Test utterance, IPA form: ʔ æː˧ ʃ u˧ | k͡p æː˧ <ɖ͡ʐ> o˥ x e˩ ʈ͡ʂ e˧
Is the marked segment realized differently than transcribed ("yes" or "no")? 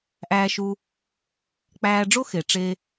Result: no